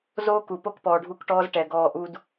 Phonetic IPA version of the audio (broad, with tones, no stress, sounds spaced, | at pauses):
z oː˦ k u˨ p o˦ k p ɔː˨ ɖʱ u˦˨ k ʈ ɔː˦ z ʈ ɛ˨ ɡ ɔː˦˨ ʔ u˦ d